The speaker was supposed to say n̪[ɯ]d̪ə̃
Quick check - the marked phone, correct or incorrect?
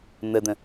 incorrect